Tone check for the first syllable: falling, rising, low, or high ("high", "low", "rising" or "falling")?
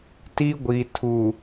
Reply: high